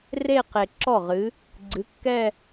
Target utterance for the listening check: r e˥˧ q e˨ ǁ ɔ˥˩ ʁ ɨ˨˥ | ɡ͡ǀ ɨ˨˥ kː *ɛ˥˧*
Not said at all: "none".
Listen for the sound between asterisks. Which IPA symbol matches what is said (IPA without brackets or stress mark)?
ɛ˥˧